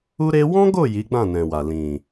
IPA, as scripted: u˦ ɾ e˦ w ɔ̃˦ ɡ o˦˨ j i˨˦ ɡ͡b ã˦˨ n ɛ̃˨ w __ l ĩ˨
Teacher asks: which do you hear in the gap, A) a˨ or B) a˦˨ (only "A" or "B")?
A